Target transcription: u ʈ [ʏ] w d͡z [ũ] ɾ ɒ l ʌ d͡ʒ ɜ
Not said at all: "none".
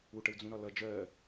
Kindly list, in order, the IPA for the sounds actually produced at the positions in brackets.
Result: ə, ũ

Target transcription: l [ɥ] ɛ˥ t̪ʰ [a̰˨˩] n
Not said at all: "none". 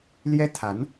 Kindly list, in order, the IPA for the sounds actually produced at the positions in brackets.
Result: j, a˧˥

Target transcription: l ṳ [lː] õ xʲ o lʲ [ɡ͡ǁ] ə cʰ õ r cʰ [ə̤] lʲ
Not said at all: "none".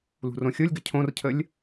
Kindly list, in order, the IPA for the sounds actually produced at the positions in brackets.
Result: r, ɡ, ə

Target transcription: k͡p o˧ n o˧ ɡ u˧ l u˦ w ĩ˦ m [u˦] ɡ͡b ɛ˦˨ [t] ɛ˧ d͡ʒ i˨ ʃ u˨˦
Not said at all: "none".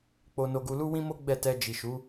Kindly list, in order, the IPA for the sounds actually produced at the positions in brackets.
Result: o˦, t

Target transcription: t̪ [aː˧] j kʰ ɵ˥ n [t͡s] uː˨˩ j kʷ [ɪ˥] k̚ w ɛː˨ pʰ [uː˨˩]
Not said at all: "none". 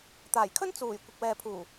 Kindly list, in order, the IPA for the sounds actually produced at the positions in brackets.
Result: aː˨˩, t͡s, ɪ˨, uː˨˩

